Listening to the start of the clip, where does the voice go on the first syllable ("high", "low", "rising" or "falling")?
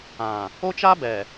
low